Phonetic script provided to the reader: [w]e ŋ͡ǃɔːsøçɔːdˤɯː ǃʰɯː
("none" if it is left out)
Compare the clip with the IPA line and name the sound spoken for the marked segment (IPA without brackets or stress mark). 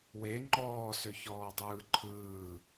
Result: w